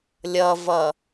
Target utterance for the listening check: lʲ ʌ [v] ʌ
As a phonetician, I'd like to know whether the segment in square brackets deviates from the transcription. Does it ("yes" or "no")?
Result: no